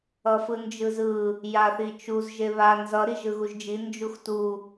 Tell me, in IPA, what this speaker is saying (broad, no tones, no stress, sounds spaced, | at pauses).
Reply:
ʌ f ɯ n d͡ʒ ɯ z ɯ | j a θ i t͡ʃ u z ʒ e β a n z ʌ ɾ i ʒ ɯ ɣ u ʒ d͡ʒ i n d͡ʒ u x t u